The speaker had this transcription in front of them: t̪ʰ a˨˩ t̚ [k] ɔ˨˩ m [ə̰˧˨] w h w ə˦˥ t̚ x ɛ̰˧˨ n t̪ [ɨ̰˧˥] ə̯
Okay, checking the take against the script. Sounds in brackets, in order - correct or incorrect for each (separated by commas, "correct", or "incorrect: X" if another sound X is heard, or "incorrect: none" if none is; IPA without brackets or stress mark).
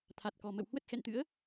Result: correct, correct, correct